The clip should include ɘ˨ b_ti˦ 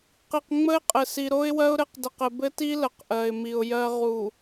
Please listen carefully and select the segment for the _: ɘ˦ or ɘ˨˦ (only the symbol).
ɘ˦